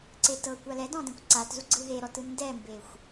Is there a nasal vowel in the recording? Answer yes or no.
yes